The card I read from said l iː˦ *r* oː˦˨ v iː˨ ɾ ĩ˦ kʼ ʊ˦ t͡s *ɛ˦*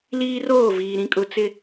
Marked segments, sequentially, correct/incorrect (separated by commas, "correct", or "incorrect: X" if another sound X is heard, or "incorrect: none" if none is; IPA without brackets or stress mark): correct, incorrect: ɪ˦